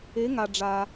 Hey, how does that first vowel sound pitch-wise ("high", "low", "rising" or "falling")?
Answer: rising